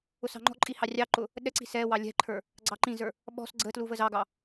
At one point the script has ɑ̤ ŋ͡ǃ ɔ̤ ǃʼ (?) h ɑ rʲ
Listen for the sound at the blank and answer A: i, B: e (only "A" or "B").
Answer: A